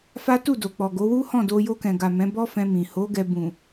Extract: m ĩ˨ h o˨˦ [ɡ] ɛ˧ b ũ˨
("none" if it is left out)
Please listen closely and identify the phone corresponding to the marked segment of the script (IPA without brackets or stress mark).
ɡ